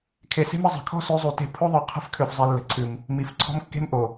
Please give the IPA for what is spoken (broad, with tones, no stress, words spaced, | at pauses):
kʰe˨se̤˦mə˨ zˤə̤˨kʰɔ̤˦sø˨˦ zˤu˨te̤˦˨ pʰo˦ðˤœ˨ qʰə̤˦fkʰø˨fzˤi˨ lːə̤˨ǀʰɨ˨m | mi˨fǀʰɔ̤˦mkːe̤˦mʔo˨